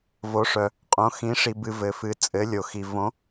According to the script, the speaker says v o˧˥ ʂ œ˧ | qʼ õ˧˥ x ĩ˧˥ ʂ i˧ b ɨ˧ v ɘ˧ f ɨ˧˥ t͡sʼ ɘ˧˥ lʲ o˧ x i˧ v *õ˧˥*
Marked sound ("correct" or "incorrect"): correct